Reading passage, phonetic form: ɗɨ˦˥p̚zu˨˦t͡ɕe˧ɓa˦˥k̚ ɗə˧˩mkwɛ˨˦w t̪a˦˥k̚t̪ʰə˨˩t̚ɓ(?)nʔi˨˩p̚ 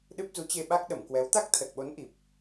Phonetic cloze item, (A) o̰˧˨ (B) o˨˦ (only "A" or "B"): B